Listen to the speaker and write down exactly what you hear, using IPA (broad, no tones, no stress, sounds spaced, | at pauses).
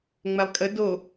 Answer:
ŋ͡m ɛ lˠ kʼ ə d o